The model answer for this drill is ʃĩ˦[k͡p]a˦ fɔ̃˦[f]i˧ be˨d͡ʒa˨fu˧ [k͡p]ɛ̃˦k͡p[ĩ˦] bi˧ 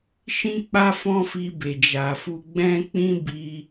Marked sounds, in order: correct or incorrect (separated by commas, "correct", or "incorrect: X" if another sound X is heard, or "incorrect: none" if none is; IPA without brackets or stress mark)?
correct, correct, incorrect: ɡ͡b, correct